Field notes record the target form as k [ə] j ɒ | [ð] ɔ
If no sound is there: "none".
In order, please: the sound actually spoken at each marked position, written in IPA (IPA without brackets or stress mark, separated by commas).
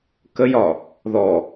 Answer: ə, ð